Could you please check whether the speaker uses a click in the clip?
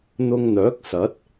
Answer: no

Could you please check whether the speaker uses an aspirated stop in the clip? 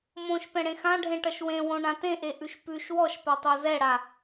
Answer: no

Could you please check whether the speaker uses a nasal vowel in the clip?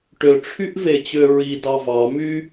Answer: no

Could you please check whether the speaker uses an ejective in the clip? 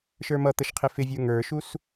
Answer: no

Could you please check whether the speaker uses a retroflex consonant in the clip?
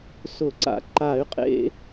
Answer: no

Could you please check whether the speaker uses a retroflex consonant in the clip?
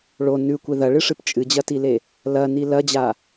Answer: yes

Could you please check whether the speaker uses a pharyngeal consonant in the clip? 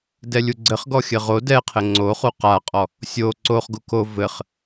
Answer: no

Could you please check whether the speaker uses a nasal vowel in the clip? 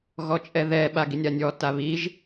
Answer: no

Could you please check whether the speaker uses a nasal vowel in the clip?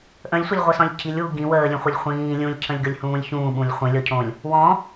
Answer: yes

